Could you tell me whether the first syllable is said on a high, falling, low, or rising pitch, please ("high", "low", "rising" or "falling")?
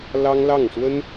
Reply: high